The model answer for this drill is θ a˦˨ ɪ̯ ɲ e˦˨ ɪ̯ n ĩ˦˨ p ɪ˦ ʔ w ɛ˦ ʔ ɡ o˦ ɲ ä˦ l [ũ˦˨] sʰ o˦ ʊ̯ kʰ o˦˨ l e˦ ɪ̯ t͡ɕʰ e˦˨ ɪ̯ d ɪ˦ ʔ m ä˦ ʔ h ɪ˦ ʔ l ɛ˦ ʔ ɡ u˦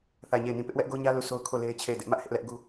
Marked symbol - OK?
no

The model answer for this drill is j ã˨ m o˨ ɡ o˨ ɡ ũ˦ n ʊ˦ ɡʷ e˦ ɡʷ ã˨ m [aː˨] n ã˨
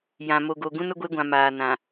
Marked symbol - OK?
yes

